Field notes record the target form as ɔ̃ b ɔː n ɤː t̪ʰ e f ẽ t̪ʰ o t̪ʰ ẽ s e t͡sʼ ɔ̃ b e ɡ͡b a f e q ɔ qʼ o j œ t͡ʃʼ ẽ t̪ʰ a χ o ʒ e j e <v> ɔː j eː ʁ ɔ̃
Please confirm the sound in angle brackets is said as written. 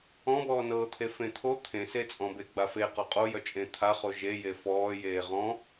no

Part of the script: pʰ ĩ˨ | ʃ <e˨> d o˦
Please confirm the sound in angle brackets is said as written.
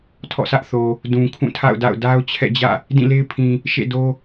no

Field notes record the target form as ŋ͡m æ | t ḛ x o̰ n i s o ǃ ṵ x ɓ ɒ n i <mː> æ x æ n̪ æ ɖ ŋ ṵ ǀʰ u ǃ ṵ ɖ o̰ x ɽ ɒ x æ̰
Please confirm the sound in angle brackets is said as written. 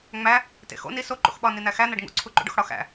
no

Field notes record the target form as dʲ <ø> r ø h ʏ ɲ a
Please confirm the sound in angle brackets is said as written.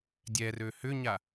no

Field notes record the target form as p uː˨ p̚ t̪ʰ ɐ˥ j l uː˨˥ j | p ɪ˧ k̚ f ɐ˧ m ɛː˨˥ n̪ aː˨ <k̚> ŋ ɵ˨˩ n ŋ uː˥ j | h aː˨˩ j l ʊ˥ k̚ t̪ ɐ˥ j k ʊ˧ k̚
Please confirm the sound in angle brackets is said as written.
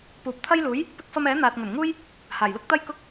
no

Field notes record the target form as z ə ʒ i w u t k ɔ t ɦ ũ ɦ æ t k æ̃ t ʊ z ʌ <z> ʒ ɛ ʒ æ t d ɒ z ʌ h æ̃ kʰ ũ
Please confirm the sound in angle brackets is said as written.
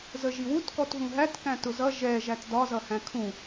no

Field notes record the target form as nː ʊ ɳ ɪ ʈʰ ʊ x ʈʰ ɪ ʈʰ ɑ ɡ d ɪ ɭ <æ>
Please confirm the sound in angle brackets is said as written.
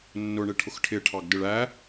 yes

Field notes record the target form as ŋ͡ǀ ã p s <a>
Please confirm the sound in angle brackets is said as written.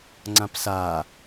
yes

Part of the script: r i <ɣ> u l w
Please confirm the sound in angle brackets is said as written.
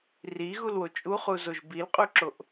yes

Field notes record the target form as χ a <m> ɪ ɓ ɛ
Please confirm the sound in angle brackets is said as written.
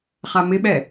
yes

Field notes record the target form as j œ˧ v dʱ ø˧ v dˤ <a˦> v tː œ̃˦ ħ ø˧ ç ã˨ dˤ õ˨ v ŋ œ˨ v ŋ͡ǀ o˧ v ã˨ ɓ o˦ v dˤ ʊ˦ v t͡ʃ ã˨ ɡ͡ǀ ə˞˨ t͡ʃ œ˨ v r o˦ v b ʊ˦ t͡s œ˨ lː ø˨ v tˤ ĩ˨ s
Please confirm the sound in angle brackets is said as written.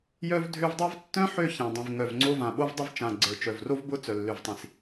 yes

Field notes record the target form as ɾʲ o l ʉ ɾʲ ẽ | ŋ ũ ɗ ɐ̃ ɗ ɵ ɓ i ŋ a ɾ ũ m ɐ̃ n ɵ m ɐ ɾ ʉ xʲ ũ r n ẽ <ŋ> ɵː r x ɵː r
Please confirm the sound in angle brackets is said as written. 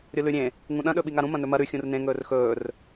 yes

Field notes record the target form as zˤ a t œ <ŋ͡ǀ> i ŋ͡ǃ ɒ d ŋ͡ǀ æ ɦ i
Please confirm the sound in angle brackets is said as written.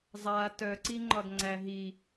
no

